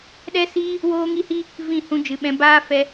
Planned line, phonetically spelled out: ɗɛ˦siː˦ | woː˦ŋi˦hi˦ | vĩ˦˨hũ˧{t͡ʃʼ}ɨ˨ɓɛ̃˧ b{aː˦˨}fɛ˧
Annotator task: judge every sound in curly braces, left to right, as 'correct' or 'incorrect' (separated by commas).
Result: incorrect, incorrect